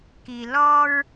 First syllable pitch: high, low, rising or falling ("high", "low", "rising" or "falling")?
low